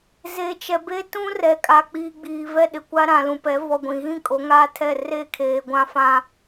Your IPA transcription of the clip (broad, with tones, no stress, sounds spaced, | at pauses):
z e˨ t͡ʃ ɛ˨ b e˦ t ũ˦ r ɛ˨ kʼ a˨ k͡p iː˨ ɡ͡b iː˨ v ɛ˦ ɗ ɪ˨ kʷ a˦ ɾ ã˨ l ũ˨ p ɛ˨˦ v ɔ˨ ɡʷ ĩ˨ ɣ ĩ˦ kʼ o˨˦ ŋ aː˦ tʰ ɛ˦˨ r e˦˨ kʰ eː˨ ɡʷ ã˦ f ã˦